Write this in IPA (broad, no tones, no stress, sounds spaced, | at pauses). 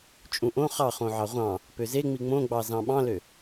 t͡ʃʼ ũ ʔ õ χ ɑ χ õ ʕ ɑ ʁʷ ɑ̃ | p ø z e ŋ͡m i ŋ͡m õ ɡ͡b ɑ z ɑ̃ ɓ ɑ̃ l ø